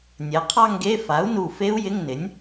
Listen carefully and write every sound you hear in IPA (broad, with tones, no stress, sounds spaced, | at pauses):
nʲ ɛ˩˥ qʰ ɑ˥˧ ŋ ɡ e˧˥˧ f a˩˥ u̯ n u˧˩ f e˦˥ u̯ j ɪ˧˥˧ ŋ n ɪ˩˥ nʲ